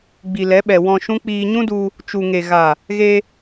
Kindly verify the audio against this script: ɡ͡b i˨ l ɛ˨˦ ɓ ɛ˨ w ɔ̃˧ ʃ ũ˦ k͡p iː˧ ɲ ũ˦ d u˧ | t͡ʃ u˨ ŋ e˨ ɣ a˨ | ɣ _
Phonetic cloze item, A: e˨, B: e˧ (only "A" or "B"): B